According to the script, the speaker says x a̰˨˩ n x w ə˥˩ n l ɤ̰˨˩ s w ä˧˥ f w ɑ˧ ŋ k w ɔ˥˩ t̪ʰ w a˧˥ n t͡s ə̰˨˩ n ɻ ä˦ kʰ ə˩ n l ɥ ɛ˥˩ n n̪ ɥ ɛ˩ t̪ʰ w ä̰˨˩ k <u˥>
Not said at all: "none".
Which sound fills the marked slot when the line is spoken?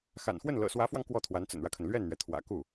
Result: u˥˩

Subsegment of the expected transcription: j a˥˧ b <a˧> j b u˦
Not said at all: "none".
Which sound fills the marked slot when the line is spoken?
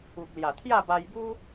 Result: a˧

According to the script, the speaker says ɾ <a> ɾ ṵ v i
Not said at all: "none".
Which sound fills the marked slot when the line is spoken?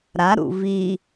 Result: a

